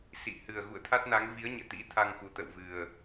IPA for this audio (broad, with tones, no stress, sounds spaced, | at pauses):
s ḭ˧˨ h ɨ˨˩ ə̯ ɣ ṵ˧˨ ə̯ t̪ʰ a˦˥ t̚ n a˨˦ ŋ v i˨˦ ə̯ ɲ ɛ̰˧˨ t̪ ḭ˧˥ t̪ʰ a˧ ŋ x u˨˩ t̪ ə̰˧˨ w v ɨ˨˩ ə̯